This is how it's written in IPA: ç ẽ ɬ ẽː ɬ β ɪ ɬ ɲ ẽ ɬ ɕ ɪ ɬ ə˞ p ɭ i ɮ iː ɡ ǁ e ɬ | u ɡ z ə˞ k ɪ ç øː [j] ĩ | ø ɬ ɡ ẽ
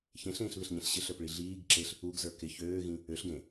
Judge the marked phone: incorrect: ɣ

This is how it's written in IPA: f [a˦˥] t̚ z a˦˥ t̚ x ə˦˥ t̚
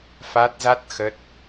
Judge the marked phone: correct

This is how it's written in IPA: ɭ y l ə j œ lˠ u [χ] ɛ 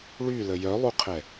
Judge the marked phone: incorrect: qʰ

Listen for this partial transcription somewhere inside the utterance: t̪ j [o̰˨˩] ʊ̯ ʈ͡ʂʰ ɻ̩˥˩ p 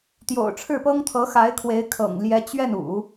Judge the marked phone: correct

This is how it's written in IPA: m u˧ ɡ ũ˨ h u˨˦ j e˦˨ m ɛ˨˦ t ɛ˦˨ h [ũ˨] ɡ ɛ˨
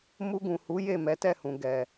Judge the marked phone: correct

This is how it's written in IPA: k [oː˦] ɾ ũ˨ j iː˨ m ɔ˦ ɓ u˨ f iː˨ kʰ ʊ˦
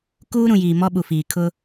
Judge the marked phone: incorrect: uː˦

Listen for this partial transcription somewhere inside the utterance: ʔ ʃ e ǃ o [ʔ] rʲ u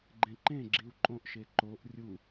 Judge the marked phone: correct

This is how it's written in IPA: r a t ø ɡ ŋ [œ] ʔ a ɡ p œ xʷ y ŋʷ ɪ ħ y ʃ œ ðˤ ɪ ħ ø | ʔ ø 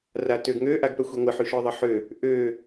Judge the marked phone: incorrect: ø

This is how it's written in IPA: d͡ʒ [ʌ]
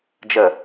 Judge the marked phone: incorrect: ə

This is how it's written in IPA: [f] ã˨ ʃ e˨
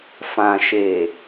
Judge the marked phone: correct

